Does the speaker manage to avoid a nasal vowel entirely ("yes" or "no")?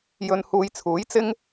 yes